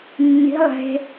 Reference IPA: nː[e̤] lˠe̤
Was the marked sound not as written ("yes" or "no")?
yes